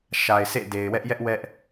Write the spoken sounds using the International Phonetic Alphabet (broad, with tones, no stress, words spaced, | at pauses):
ʃa˨ɪ̯ sʰḛ˦˨ de˨ɪ̯wɛ˦ʔjɛ˦ʔ wɛ˦ʔ